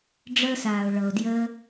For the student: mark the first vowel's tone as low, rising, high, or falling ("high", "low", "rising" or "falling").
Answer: high